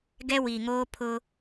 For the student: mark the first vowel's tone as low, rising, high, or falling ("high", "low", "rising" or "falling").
high